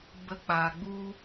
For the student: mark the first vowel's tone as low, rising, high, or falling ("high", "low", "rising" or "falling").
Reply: rising